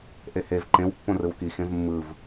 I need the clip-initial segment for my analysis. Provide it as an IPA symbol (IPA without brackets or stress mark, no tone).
ʔ